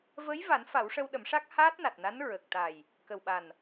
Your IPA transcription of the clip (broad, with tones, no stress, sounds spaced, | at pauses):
v əː˧˥ j v a˨˩˦ n f a˨˩˦ w ʂ ə˧ w ɗ ə˨˩˦ m ʂ a˦˥ k̚ h aː˦˥ t̚ n a˨˩ t̚ n a˧˥ n ɹ ə˨˩ k̚ t̪ a˨˩ j | k ə˨˩ w ɓ a˨˩ n